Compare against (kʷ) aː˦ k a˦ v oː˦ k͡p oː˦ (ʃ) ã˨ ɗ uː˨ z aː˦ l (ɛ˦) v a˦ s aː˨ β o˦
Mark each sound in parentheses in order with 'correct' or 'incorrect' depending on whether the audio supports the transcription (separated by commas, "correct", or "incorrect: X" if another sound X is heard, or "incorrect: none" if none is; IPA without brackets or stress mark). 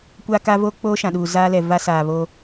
correct, correct, incorrect: ɛ˨